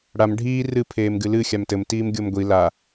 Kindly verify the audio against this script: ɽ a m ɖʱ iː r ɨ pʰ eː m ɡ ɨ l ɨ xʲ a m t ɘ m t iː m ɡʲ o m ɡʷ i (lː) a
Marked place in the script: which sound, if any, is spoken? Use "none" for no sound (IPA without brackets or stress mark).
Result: l